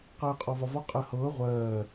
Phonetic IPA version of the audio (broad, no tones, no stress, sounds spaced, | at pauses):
q ɜː qʼ ɔ v ɒ v ɔ qʼ ɜ h ɤː ʁʷ ɜː